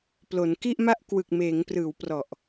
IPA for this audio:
p l o˩˦ n k i˥˩ ʔ m a˥˩ ʔ k w ɯ˨˩ k̚ m eː˩˦ ŋ p r ɯː˩˦ w p r ɔ˨˩ ʔ

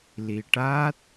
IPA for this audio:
l i˨˩ ʈ aː˦˥ t̚

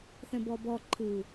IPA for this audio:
θ ɛ̃ b ɔ b ɔ ǃʰ ɯ

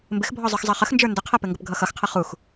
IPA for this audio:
m b ɪ x bʱ ɔ zˤ ə˞ x zˤ ʌ χ ə x n d͡ʒ ə˞ n d ə qʰ ɛ p ɪ ŋ ɡ ə p ɡʱ ʌ x ʌ x qʰ ə χ u x

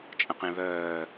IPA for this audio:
t͡ʃʼ ə̃ q ẽ β œː

